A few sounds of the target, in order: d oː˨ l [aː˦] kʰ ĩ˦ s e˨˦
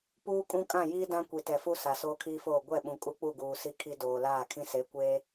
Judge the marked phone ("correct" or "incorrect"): incorrect